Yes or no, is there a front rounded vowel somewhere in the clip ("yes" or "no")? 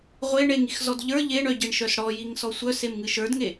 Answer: yes